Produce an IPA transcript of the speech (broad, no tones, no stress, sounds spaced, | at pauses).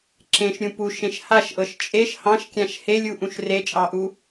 ǁ ẽ ʃ ɾʲ ũ p u ʃ ẽ ʃ h a ʃ ʔ ɤ ʃ t͡ʃʼ e ʃ h ɑ̃ ʃ kʲ ã ʃ h e lʲ u ʔ ũ ʃ r e t͡ʃʼ ɑ ʔ u